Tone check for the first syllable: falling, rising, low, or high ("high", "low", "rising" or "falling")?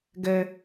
high